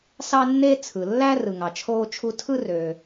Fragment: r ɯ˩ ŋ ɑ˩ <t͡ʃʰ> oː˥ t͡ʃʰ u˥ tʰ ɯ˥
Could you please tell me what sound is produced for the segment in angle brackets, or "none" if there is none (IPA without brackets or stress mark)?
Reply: t͡ʃʰ